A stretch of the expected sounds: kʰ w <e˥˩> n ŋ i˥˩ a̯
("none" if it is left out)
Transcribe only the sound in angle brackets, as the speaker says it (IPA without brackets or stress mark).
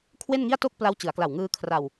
e˥˩